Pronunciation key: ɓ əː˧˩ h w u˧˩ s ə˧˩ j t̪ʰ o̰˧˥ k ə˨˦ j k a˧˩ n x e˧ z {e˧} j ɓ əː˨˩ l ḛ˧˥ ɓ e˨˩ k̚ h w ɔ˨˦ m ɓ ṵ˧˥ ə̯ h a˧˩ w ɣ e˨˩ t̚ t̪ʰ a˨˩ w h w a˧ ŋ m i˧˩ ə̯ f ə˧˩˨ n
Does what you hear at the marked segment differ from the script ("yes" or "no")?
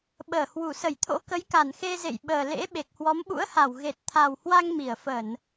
yes